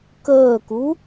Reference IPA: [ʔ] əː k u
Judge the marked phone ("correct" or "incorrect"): incorrect